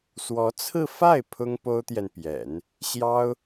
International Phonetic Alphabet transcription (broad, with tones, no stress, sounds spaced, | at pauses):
s w ɔ˧˥ t͡sʰ ɹ̩˥˧ f a˥˩ ɪ̯ pʰ ʊ˥ ŋ p o˥ ʊ̯ t̪ j ɛ˨ n p j ɛ̰˨˩˦ n | ɕ j ɑ˥ ʊ̯